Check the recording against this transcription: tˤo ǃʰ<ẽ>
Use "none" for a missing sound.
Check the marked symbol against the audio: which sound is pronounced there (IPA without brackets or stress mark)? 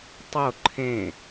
ẽ